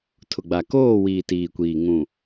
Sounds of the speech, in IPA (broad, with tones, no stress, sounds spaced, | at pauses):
tʰ ʊ˨ ɡ͡b a˨ k oː˦˨ w iː˨ t iː˨ kʷ iː˨ ŋ ũ˨